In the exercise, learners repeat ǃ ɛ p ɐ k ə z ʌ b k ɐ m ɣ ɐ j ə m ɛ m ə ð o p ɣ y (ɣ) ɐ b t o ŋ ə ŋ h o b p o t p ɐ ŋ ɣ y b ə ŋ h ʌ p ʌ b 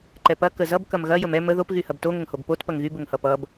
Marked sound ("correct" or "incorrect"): incorrect